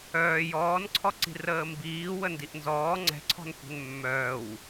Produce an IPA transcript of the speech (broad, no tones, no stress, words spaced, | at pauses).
œː jɔːnǀʰɔǀi̤ rəːmbiː wəndiʔnzɔː ŋ͡ǀɛ̤ǀʰɔ̤n kʷɛ̤nmːœːw